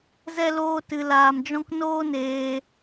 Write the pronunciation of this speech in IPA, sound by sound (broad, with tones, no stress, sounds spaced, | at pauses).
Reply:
z ɛ˦ l oː˦ t ɨ˧ l aː˧ m d͡ʒ ɔ̃˦ k n oː˦ n eː˧